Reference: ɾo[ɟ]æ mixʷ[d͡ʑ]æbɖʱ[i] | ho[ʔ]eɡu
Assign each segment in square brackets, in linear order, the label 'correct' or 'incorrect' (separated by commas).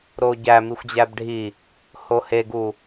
correct, correct, correct, incorrect